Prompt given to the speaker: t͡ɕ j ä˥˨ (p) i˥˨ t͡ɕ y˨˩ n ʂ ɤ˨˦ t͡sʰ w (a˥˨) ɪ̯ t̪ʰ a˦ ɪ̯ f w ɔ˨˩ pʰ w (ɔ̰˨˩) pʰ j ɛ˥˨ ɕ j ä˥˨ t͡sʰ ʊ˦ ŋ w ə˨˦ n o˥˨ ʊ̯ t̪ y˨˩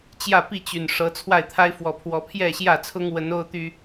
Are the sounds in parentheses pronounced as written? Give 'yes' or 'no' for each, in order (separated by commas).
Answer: yes, yes, no